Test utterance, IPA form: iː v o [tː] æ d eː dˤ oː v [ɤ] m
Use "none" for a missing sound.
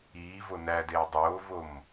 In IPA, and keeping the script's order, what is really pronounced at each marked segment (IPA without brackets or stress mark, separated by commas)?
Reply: n, o